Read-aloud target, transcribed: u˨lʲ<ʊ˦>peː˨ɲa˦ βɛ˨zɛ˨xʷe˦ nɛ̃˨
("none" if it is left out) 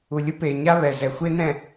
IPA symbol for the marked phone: ʊ˦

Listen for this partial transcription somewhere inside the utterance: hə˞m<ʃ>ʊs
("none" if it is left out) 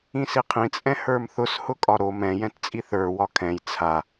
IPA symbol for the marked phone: θ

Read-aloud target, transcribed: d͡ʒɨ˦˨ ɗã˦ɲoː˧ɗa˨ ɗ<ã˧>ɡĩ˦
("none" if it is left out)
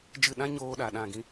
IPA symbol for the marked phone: ã˦˨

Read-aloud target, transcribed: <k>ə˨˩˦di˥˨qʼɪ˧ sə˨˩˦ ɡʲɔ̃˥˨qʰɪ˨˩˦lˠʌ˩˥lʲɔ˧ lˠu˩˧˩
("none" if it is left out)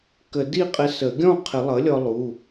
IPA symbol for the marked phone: k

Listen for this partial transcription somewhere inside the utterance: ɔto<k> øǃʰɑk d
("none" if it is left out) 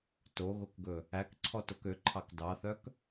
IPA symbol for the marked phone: k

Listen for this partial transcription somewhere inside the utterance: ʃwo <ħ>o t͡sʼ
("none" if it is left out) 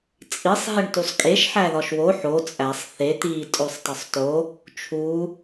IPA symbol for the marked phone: ħ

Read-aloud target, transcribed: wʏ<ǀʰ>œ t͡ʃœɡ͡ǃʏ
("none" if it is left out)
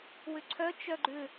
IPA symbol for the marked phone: ǀʰ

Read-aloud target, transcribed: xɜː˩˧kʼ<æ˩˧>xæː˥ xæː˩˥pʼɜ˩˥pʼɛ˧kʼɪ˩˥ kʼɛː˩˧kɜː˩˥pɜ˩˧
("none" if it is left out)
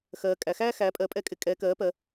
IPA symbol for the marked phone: æ˩˧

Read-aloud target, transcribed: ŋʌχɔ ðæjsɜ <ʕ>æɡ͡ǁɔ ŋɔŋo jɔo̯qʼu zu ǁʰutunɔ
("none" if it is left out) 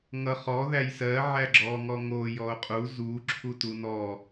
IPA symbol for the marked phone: ʕ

